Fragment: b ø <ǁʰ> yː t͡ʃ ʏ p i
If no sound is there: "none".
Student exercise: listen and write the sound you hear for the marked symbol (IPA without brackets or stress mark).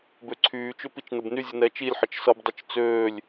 ǀʰ